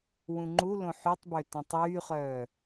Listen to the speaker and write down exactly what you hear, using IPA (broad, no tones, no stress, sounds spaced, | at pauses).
w ũ ŋ͡ǃ u l õ ħ y tˤ b ø t õ tˤ yː χ œː